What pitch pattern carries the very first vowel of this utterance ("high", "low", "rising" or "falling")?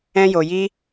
high